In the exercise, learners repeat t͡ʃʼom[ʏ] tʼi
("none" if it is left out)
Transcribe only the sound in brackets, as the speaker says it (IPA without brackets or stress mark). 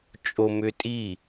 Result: ʏ